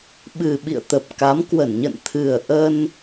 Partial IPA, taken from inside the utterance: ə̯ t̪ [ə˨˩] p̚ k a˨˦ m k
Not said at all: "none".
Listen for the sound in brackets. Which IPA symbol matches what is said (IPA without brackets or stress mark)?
ə˨˩